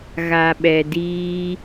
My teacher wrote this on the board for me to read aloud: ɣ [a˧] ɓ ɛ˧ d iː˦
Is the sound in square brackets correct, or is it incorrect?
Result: correct